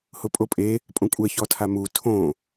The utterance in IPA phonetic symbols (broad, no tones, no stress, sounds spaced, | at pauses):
h ʊ pʼ o pʼ e | pʼ õ kʷʼ ɛ ç ɔ tʰ a m u tʰ õ